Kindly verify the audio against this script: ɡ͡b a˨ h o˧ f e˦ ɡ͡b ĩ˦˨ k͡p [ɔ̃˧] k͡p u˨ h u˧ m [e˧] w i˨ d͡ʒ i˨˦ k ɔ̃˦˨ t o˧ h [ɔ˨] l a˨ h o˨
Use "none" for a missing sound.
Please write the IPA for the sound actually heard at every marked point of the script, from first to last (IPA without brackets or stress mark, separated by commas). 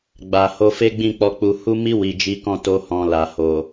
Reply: ɔ˧, i˧, ɔ̃˨